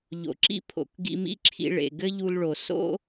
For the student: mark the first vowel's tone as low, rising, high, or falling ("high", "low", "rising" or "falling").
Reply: low